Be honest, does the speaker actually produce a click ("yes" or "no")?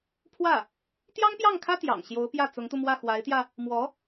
no